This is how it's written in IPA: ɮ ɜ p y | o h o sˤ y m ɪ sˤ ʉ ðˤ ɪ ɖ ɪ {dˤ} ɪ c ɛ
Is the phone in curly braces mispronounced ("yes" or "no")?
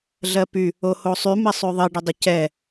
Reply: no